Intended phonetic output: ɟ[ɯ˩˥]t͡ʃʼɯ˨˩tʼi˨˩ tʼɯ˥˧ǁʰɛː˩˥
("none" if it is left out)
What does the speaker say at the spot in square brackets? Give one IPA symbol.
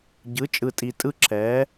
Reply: ɯ˩˥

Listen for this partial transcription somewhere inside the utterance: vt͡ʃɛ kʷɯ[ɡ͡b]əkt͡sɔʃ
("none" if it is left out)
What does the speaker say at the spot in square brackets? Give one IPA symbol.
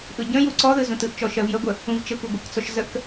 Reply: ɡʷ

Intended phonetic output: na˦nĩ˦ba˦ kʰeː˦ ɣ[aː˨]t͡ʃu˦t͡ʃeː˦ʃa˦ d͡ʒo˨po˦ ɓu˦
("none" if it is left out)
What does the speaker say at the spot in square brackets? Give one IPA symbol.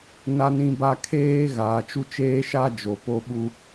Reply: aː˨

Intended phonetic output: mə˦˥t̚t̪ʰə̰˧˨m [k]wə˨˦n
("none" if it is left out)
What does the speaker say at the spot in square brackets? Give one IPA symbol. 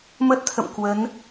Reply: k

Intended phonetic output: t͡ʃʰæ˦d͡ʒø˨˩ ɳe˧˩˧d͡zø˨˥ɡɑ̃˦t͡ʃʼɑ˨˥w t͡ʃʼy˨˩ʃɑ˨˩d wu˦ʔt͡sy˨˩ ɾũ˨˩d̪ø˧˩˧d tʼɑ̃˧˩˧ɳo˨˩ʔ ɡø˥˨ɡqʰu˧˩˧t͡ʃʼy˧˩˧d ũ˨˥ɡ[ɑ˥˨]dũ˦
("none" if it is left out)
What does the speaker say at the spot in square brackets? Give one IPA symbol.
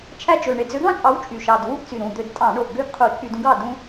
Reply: ɑ˥˨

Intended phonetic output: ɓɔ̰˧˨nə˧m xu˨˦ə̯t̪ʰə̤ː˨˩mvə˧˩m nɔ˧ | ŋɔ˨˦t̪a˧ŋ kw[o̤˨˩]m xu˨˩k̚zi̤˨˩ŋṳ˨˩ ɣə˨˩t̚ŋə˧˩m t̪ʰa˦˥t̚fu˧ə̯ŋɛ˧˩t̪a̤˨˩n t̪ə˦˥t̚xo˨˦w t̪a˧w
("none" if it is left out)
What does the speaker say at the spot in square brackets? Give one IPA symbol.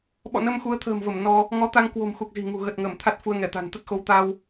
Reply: o̤˨˩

